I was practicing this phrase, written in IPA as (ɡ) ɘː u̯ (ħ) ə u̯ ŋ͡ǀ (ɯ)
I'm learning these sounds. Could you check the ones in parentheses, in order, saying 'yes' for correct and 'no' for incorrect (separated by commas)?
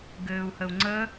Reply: yes, no, no